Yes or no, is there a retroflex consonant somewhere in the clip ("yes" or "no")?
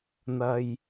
no